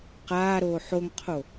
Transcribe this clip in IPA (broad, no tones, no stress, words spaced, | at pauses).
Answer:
qaːɾoː ħoŋqʰo